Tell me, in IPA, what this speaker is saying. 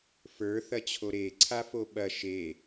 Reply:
f ə˞ θ ɐ t͡ɕʰ o ɾ e ǀʰ a f o ɓ ɐ ʃ e

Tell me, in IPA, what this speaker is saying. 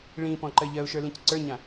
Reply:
ɭ ĩ p ɔ̃ ǃ ɜ ʎ ɜ ʊ̯ ʃ ə˞ l ĩ c ǀ ə˞ ɲ ã

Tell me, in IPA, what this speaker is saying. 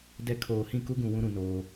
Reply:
d ɛ˨ kʰ oː˨ h ĩ˦˨ k u˦ ɡ ũ˨ w ũ˦ ɾ ũ˨˦ n oː˦

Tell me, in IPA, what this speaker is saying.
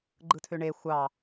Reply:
ɡ͡ǃ ɯ tʰ ø ɳ e xʷ ɑ

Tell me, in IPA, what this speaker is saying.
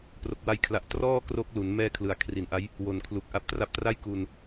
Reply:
p r o˨˩ k̚ w a˧ j kʰ l a˨˩ ʔ t r ɔː˥˩ k r o˦˥ k̚ l u˩˦ n m ɛː˥˩ kʰ l ɯ˩˦ a̯ kʰ r i˩˦ n ʔ a˦˥ j | w o˨˩ n kʰ l u˨˩ k̚ ʔ a˦˥ p̚ t r a˦˥ p̚ t r a˥˩ j k u˧ n

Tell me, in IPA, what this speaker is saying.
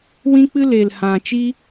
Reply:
w ĩ˦ k͡p ɨ˦ l e˨ l h ã˨ t͡ʃ iː˦

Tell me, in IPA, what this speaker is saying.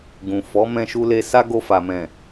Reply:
ɡ ũ˨ f ɔ˨˦ m ɛ̃˧ ʃ u˧ l e˧ s a˦ ɡ o˧ f a˨ m ɛ̃˨

